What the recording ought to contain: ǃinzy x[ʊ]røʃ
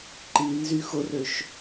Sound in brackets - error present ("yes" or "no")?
no